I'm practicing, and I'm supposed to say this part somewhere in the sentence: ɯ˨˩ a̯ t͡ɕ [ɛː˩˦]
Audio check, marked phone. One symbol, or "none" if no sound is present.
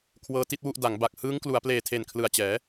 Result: ɛː˩˦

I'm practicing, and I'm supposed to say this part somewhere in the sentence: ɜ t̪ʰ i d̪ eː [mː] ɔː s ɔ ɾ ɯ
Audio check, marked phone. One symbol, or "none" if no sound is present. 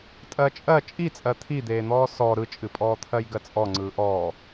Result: n̪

